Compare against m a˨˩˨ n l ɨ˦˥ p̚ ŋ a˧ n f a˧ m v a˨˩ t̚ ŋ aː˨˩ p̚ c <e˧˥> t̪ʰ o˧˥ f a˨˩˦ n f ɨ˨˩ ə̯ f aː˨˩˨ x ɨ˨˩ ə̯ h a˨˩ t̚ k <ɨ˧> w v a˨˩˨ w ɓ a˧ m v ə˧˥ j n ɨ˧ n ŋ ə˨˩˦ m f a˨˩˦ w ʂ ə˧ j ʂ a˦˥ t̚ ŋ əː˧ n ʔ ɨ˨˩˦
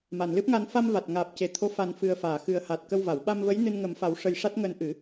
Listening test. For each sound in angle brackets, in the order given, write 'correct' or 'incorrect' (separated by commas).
incorrect, incorrect